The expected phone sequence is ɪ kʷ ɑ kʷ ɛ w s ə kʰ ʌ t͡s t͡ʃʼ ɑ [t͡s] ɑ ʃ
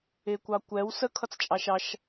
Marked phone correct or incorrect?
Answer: incorrect: ʃ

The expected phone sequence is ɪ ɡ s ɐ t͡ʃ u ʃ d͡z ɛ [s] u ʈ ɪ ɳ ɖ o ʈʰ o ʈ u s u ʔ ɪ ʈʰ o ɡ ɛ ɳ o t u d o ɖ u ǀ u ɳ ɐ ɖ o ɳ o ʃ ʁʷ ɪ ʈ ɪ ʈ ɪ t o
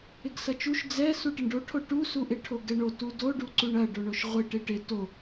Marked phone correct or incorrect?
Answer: correct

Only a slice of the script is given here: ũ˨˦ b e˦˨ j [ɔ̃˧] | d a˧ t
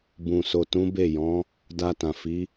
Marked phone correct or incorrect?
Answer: incorrect: ɔ̃˨˦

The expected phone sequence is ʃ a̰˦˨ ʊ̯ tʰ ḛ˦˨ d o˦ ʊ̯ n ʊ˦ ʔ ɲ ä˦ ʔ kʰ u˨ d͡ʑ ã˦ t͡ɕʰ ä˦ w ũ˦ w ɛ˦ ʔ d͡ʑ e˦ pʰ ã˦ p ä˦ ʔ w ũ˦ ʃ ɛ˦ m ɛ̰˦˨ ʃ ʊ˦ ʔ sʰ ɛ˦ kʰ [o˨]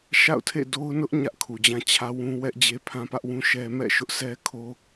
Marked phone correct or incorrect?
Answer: incorrect: o˦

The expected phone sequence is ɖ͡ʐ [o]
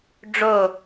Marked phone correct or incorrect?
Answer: correct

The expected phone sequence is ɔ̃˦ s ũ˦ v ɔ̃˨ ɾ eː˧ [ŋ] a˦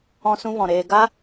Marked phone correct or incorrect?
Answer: incorrect: ɡ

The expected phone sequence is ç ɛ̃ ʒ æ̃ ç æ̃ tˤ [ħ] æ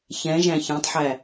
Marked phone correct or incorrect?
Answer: correct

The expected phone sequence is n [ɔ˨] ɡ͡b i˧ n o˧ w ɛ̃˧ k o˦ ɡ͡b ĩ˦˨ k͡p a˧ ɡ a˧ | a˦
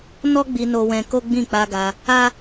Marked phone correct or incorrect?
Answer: incorrect: ɔ˦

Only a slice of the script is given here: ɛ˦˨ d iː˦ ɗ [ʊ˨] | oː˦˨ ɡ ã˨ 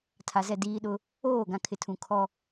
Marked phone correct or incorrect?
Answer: incorrect: ʊ˦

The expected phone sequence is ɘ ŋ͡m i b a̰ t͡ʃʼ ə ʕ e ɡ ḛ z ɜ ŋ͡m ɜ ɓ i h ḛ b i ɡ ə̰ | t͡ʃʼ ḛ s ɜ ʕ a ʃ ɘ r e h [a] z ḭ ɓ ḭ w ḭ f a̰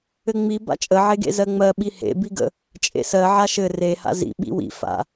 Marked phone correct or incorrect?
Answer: incorrect: a̰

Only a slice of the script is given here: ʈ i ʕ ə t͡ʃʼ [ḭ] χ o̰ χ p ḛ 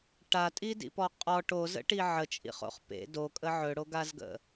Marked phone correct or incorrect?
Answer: correct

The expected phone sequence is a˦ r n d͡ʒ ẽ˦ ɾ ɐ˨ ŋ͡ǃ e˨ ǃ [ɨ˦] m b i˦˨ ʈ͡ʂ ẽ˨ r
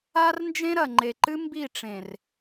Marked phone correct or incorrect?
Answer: correct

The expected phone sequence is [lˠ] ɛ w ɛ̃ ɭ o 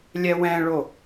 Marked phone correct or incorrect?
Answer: incorrect: lʲ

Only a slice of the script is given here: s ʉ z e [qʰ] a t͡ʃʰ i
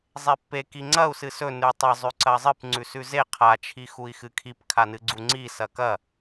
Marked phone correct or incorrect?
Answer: correct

